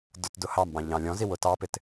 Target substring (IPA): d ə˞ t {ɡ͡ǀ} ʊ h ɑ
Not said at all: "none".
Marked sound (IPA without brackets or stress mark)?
d